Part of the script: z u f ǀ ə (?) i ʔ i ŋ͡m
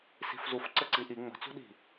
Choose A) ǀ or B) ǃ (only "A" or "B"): A